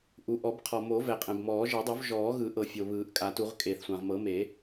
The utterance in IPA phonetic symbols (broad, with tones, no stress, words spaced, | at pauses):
ʔu˩ʔɔ˨˩˦bqʰɔ˩mo˨˩˦ vɛ˩qʼɛ̃˩bmɔː˨˩˦ ʒɤ˨˩˦dˤo˨˩˦v ʒɔː˨˩˦ɣɯ˨˩˦ʔɤ˩ fʲo˩βɯː˨˩˦ʔkʼa˨˩˦tu˨˩˦ʁ kʼeː˩θsʷã˩ʁ mɤ˨˩˦me˨˩˦